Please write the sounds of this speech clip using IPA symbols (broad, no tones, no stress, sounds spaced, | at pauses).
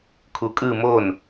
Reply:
kʰ u kʼ ɯ m o n